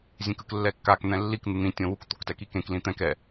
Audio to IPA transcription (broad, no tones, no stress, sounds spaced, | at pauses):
zʲ ẽ k ɯ k lː ɛ kː a k n̪ ɛ̃ lː i k n̪ ɯ n̪ ĩ tʲ õ w u k t̪ o k t ɛ k i k ẽ k l ĩ t̪ ɛ̃ k ɛ